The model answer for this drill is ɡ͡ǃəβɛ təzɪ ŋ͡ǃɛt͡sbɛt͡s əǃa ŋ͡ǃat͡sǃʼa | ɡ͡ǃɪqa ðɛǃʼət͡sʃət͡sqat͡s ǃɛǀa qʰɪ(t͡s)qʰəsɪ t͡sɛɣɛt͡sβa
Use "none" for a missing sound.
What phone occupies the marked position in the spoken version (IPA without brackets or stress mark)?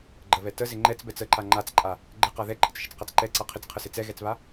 t͡s